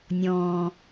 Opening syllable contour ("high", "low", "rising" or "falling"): low